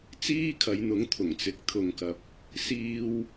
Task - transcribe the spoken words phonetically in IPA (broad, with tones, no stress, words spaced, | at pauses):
t͡siː˥kʰɐ˨˧jn̪ʊ˨˥ŋ t̪ʰʊ˨˩ŋt͡sɪ˨˥k̚t̪ʰʊ˨ŋkɐ˨p̚ | siː˧w